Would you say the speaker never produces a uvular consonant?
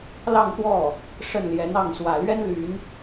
yes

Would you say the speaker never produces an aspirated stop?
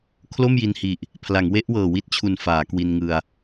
no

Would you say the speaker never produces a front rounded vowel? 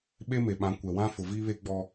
yes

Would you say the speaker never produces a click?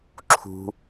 no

